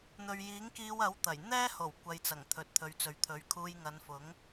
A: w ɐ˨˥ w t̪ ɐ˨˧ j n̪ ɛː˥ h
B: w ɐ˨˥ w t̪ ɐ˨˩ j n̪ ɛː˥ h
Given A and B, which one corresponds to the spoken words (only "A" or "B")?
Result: B